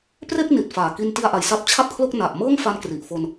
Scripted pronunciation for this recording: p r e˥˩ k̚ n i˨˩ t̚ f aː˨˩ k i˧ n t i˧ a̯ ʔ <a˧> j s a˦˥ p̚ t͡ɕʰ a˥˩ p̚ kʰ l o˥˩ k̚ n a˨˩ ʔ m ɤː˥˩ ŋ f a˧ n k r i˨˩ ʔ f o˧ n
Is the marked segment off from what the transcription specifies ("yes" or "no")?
yes